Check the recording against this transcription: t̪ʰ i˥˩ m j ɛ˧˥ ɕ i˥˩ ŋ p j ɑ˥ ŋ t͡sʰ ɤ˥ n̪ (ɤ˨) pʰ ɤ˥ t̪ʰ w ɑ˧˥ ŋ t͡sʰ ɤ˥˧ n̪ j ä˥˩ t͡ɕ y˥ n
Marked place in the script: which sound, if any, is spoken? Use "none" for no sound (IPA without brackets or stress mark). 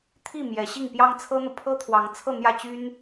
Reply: ɤ˨